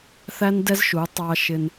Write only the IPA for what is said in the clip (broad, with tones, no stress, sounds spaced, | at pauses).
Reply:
θ æ˦ n d ɛ˦ z ʃ u˨˦ tˤ ɑ˦ ʃ ɪ˦ n